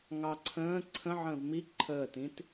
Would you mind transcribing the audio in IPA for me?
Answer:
ŋ ɑ ǀʰ ə̃ː ǀʰ ə̃ ʕ ə̃ː v m i ǃʰ əː t ĩ t

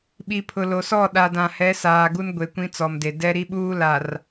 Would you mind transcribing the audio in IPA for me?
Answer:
ɓ i˨ pʰ ʊ˨ l o˨ s ɔ˦˨ ɗ a˨ d ã˨ h ɛ˨˦ s aː˨ ɡ u˦ n ɡʷ e˨ kʷ ĩ˦ t͡s ɔ˨ m d e˨ d ɛ˦ ɾ i˦ ɓ uː˦ l a˨ r

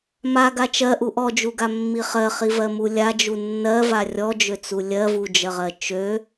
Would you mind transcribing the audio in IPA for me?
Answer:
m a ɡ a t͡ʃ ɜ ʔ u ʔ ɔ d͡ʒ u ɡ a mː i χ ɜ χ i v ɜ m u lʲ a d͡ʒ u nː ɜ v a rʲ ɔ d͡ʒ ø t͡s u lʲ ɜ v u d͡ʒ ɜ ʁ ɜ t͡ʃ ø

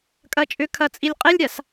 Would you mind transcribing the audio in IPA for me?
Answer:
kʼ ɐ t͡ʃʼ ʏ kʰ ɐ t͡sʼ i lʲ qʼ e lʲ ɾʲ a s

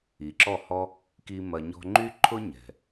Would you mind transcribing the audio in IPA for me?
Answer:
i˨ ǁ ɔ˦˨ h ɔ˦ | k i˦ m ɐ˧ ɲ ɔ̤˦ ŋ͡ǃ y˦ ǃʰ ʊ˦ ɲ ɛ̤˨

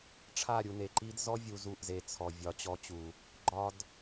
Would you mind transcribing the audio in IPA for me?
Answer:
ʈ͡ʂʰ a˦˨ ɾʲ u˧ n e˨ ǃ i˧ d z ɔ˦ vʲ u˧ z u˦˨ ʔ z e˧ t͡sʰ ɔ˨ vʲ ɒ˨˦ t͡ɕ ɔ˧ t͡ɕ u˨ | ɡ͡ǃ ɒ˧ d

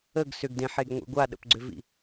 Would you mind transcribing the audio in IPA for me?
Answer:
ə ɡ s ʏ ɡ d ẽ ħ e ɡ ŋʷ ḭ ɡʷ a ɗ ə̰ p ɡ͡ǀ ʏ v ḭ

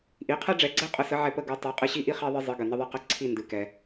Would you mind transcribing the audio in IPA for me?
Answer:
ʔ i˩˥ qʰ ɛ˥ ɖ͡ʐ ɛ˩˥ ɡ͡ǀ ɛ˥ qʼ ə˩˥ s ə˩˥ ʕ ɛ˧ p ə˥˩ ɡ u˧ tˤ i˩˥ qʼ ɨ˧ ɕ i˥˩ ʔ i˥ χ i˧ ðˤ ɨ˧ zˤ ɨ˩˥ ɡ ə˩ n ə˥ ðˤ ɨ˥ q ə˥˩ ǀʰ i˥˩ n d ɨ˩ k ɛ˩

